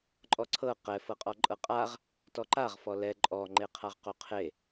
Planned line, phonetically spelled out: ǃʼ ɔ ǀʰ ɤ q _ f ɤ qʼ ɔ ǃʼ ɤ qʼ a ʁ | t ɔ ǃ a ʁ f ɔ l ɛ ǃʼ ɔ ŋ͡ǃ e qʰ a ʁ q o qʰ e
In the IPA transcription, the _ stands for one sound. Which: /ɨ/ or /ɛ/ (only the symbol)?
ɛ